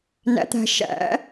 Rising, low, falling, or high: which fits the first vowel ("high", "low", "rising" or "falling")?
rising